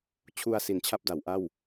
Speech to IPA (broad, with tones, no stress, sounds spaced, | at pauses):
t͡ɕʰ u˧ a̯ s i˨˩ n t͡ɕʰ a˥˩ p̚ d a˩˦ w ʔ a˥˩ w